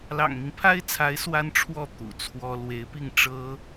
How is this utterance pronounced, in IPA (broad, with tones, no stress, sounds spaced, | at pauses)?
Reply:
l ɑ̰˨˩ ŋ m i˦ ŋ pʰ a˥ ɪ̯ t͡sʰ a˧˥ ɪ̯ s w a˥ n ʈ͡ʂʰ w ɔ˥˩ t̪ ṵ˨˩ t͡sʰ w ɔ˥ l w e˧˥ ɪ̯ p i˥˩ ŋ ʈ͡ʂ ɤ˥